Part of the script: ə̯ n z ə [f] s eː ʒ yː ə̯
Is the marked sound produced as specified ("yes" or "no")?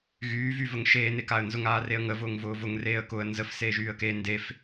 yes